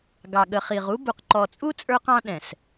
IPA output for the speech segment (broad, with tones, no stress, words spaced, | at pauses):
ɡɑ˨ ɠə˨χi˨ʁ u˦ bu˨qǃɔ˨t͡sʼu˦ t͡sʼə˞˦qɑ̃˦ɗɛ̃˨s